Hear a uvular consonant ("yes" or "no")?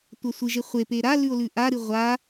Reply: yes